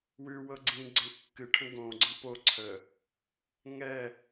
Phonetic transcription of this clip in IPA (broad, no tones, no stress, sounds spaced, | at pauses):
w ʉ w ɤ ɡ͡ǀ ĩ ɡ͡ǀ ɛ̃ kː ɨ ʈʰ ə̃ ɡ õ ɡ͡ǀ ə̃ p o ǀʰ ə | ŋ ɛ